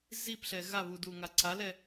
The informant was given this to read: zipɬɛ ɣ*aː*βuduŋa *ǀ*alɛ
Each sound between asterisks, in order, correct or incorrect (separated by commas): incorrect, correct